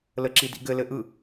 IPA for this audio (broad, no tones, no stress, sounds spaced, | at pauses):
l ə ǁ i d ḭ ɡ ɘ l ɘ ʔ ɯ